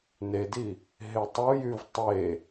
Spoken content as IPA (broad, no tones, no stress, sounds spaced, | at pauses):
n e d i | ɦ e tˤ u j y v tˤ e